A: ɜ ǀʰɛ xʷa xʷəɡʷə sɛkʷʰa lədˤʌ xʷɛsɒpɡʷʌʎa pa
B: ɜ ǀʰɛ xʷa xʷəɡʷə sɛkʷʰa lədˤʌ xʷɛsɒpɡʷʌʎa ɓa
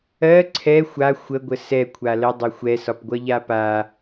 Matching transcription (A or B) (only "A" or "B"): A